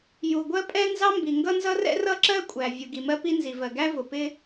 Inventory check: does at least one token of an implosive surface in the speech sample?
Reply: no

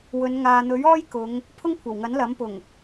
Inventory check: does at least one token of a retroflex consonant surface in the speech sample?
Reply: no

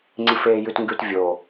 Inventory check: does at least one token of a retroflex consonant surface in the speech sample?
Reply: no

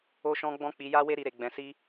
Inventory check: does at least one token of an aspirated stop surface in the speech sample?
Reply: no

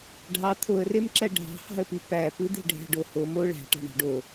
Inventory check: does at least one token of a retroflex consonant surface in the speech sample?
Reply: yes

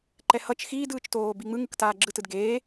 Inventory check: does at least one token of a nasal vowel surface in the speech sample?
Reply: no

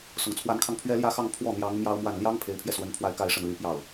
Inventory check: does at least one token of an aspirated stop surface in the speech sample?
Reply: yes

